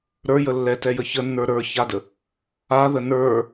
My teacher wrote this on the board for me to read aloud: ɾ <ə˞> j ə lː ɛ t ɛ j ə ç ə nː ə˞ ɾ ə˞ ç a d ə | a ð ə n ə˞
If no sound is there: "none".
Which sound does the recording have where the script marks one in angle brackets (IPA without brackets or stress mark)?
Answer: ə˞